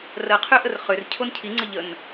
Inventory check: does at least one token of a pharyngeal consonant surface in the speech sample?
no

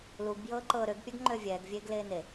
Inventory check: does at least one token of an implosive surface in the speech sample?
no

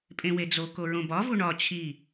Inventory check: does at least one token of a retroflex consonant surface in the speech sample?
yes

